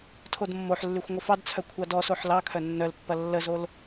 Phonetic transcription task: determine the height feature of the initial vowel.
mid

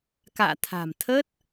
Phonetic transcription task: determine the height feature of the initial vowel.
low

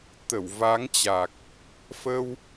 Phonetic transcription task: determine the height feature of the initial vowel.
mid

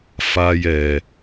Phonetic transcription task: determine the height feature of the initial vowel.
low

